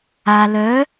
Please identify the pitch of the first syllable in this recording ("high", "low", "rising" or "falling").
low